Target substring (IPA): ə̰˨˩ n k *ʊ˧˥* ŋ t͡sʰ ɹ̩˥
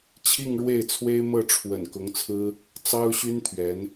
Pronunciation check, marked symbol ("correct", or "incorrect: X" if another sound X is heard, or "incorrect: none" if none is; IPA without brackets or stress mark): correct